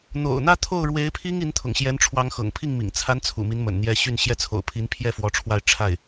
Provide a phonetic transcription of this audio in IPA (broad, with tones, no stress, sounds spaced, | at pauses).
n̪ o̰˨˩ ʊ̯ n̪ ä˥ t̪ʰ o˥˩ ʊ̯ ɻ w e˧˥ ɪ̯ pʰ i˥ ŋ i˧˥ n t̪ʰ ʊ̰˨˩ ŋ ɕ j ɛ˧˥ n ʈ͡ʂʰ w ɑ˧˥ ŋ x ɤ̰˨˩ ŋ pʰ i˥˩ ŋ m ḭ˨˩ ŋ t͡sʰ a˧˥ n t͡sʰ ṵ˨˩ m i˧˥ n m ə̰˨˩ n n̪ j ɛ˥ ɕ y˥˩ n ɕ j ɛ˧˥ t͡sʰ o̰˨˩ ʊ̯ pʰ i˧˥ n pʰ j ɛ˥˩ f w ɔ˧˥ ʈ͡ʂʰ w a˥˧ ɪ̯ ʈ͡ʂʰ a˥˩ ɪ̯